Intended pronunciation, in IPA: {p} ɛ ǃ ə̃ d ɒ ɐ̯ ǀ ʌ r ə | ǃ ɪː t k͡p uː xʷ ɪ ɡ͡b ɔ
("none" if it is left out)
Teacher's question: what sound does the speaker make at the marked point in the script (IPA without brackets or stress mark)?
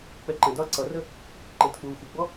k͡p